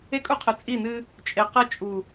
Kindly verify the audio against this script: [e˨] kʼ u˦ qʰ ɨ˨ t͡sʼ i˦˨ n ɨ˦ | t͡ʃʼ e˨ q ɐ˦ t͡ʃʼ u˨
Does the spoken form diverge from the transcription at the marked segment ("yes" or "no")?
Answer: yes